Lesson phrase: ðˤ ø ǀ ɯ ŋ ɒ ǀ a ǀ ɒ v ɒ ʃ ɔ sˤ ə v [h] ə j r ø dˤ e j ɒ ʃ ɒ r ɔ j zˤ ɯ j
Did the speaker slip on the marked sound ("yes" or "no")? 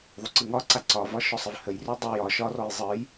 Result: no